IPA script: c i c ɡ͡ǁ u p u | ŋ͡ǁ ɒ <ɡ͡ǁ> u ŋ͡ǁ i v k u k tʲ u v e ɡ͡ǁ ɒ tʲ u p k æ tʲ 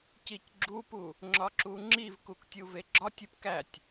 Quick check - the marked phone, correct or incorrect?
incorrect